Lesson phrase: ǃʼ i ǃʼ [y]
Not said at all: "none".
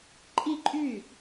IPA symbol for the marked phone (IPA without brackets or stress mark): y